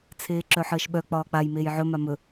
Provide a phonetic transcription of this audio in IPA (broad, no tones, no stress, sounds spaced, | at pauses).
t͡sʰ eː ǁ œ ħ əː ʃ ɓ œ k͡p ɒː k͡p a j m eː j ʕ ɵ m a m ɵ